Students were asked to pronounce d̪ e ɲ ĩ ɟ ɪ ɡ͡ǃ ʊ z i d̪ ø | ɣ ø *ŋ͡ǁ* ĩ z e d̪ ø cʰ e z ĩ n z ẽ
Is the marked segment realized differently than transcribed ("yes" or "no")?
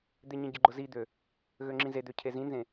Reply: no